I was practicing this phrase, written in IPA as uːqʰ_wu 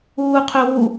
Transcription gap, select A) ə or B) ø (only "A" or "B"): B